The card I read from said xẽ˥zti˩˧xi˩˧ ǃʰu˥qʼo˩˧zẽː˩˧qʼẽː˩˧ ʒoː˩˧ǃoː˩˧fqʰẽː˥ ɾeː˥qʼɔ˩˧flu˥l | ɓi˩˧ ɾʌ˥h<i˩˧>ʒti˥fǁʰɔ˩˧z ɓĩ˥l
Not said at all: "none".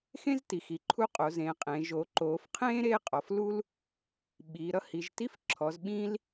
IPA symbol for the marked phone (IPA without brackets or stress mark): i˩˧